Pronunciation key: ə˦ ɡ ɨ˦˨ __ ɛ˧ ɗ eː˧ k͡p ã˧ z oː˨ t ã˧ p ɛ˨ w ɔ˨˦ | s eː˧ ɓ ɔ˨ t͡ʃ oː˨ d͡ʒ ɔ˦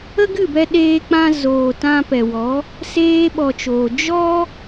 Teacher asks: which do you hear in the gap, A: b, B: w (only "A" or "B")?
A